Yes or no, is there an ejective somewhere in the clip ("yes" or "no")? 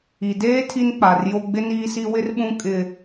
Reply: yes